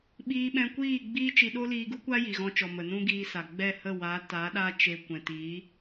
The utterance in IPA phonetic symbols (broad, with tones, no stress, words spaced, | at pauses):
ɓiː˧ ɓɛ̃˧kʷiː˦˨ɡ͡biː˦ t͡ʃi˧ɗo˦ liː˧ɡu˦kʷa˦ ji˨ɣɔ̃˧t͡ʃɔ˨ mə˨nũ˦ɡiː˧sa˨ ɡ͡bɛ˦˨ hə˦˨waː˨˦taː˨˦ɗaː˦ t͡ʃe˧ kʷɛ̃˨ti˨˦